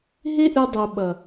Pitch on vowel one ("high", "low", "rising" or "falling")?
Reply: high